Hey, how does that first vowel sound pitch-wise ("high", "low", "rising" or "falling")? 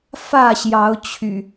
falling